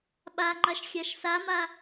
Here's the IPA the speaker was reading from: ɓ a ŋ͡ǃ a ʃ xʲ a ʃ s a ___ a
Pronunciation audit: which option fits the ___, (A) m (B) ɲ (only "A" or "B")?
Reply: A